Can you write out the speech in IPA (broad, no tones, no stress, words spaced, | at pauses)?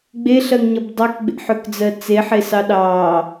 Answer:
ɡ͡beɬɜŋɲʌb dˤɑkɡ͡bḛħøkd͡zɜ t͡seħesɑ ɗɑː